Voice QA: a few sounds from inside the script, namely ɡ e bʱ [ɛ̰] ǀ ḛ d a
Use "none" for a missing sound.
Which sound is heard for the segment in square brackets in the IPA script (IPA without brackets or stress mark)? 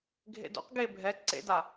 ɛ